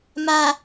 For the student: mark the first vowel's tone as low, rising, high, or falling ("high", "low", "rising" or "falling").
low